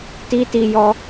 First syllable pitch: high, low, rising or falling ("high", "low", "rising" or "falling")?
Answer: high